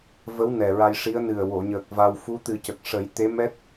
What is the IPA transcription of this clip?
v ə˧˥ w n ɛ˨˩ ɹ a˧ j ʂ i˧˥ ə̯ n ɨ˨˩ ə̯ w o˨˩˨ ɲ əː˨˩ k̚ v a˧ w f u˧˥ t̪ ɨ˨˩˦ c ə˨˩ k̚ ʂ ə˨˩˦ j t̪ e˧˥ m ɛ˦˥ t̚

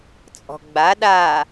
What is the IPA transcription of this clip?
t͡sʼ ɔ̤ ɡ͡b a ɗ a

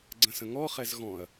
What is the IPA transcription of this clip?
ɡ͡ǀ ə̃ s ə̃ ŋ ɔ χ ɛ z ɣ ɔ̃ ɐ̯

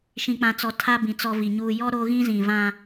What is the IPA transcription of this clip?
ʃ ĩ˨ k͡p ã˨ t͡s ɔ˨ tʰ a˦ b ĩ˨ t͡s ɔ˨ v i˨ ɲ uː˨ j ɔ˦ ɾ o˦ ɣ ĩ˦ z ĩ˨ v ã˦

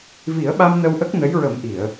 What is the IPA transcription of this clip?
v i˨˩˦ ə̯ ɓ a˧ m n ə˧ w ʔ ə˦˥ k̚ n ə˧˥ j ɹ ə˨˩˦ m ʔ i˨˩˨ ə̯

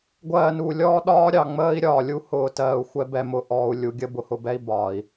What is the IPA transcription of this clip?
ɡʷ ɜː˨ n u˨ lʲ ɔː˦ ɗ ɒː˦ ɾʲ ɑ˨ ŋ͡m əː˦ i̯ ɾʲ ɒː˨ lʲ u˦ h ʊː˨ t ɜː˨ u̯ xʷ ɛ˦ b ɛ˨ m ʊ˨ ʔ ɔː˨ u̯ lʲ u˨ ɡʲ ə˦ b ʊ˨ h ʊ˨ b ɛ˦ i̯ b ɒː˨ i̯

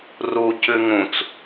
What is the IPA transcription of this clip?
r u c ʉ ŋ ũ t͡s

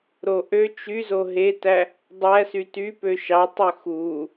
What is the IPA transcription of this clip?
ɾ o ʔ ø t͡ʃ y z o ɦ e t æ | dˤ æ s y t y p ø ʃ ɑ tˤ ø x u

